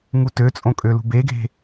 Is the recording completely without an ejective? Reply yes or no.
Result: no